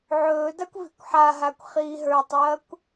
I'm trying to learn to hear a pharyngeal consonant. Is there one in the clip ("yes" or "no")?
yes